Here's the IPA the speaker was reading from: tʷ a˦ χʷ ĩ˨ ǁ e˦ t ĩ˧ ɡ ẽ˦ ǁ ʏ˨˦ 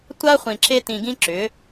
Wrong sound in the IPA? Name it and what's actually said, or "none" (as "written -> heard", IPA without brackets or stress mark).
ẽ˦ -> ĩ˦